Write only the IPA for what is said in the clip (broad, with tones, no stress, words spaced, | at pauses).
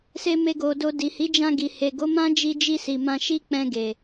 se˧me˧ɡo˨do˧ di˨hi˨˦d͡ʒã˧ɡi˨ he˨ɡo˨˦ mã˦d͡ʒi˧d͡ʒi˧si˨ mã˧ʃi˦ k͡pɛ̃˧ɡe˨